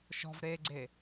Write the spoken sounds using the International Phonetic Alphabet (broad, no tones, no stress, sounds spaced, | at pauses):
ʃ ɔ̤ v ɾ eː ɡ͡ǀ e